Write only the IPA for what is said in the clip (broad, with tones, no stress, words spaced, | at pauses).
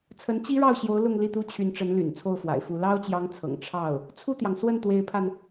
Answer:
t͡sʰə˧˥nt͡ɕi˥ɻɑ˥˩ʊ̯ɕjo˧˥ʊ̯ lʊ˥˧ŋli˥˩t̪u˥ t͡ɕʰy˧˥nʈ͡ʂə˧˥n ly̰˨˩nt͡sʰo˥˩ʊ̯fwa̰˨˩ɪ̯fu˧˥ lɑ˥ʊ̯t͡ɕjɑ˧˥ŋ t͡sʰɤ̰˨˩ŋ ʈ͡ʂʰɑ˥˩ʊ̯ | t͡sʰu˥˩t̪jɑ˩ŋ swə˥˩nt̪we˧˥ɪ̯pʰa˧n